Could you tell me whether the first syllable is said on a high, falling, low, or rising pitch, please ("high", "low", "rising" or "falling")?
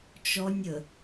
high